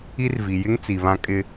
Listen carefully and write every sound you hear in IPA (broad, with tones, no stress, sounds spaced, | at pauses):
i˦ r v i˨ j ɪ˦ ŋ t͡s i˨ β ã˦ kʼ ɪ˦